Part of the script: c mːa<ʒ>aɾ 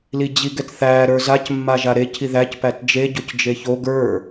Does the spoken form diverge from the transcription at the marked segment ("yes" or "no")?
no